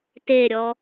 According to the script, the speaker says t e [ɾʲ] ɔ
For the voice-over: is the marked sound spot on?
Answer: yes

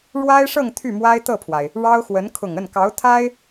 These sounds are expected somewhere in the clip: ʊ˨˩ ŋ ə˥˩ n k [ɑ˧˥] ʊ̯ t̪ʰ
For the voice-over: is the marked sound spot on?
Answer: yes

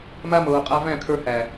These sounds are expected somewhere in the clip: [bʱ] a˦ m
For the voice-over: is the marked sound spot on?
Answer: no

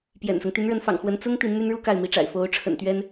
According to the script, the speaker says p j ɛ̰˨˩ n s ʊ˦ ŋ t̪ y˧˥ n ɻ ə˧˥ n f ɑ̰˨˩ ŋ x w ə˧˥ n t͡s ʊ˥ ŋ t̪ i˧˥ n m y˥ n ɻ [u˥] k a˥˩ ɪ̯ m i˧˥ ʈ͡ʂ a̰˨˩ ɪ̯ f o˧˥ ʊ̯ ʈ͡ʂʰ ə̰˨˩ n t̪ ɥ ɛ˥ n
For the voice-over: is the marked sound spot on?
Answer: yes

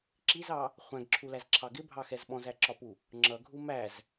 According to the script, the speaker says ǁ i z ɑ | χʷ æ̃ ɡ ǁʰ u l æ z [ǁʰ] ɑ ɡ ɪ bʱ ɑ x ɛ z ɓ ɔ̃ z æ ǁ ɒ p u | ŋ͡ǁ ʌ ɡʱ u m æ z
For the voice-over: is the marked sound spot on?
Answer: yes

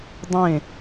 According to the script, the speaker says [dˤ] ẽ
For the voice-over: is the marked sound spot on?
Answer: yes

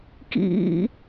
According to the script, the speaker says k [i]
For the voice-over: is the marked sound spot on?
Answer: no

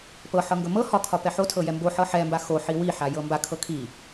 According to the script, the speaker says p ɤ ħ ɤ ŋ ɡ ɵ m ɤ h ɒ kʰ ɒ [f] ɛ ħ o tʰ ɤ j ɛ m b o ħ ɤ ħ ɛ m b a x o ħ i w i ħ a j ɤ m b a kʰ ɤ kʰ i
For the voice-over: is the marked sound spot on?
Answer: no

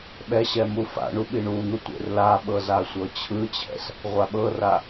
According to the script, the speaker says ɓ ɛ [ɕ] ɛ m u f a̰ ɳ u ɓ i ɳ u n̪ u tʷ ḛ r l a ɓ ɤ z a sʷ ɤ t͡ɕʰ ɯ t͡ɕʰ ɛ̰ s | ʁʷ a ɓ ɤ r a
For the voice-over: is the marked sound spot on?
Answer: yes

